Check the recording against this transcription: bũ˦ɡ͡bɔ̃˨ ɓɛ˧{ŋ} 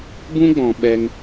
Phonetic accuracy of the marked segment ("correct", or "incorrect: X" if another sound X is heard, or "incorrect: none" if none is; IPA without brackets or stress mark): correct